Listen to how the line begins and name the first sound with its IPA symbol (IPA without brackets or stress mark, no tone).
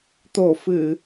t̪